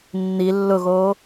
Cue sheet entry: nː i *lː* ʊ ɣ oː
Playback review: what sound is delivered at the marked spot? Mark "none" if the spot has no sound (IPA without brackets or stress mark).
lː